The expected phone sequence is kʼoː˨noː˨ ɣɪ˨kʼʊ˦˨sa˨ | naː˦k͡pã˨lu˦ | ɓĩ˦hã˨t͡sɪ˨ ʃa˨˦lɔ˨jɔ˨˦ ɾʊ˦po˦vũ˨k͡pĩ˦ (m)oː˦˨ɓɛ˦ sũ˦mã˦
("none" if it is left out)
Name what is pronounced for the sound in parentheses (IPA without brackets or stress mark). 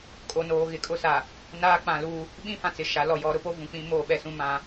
m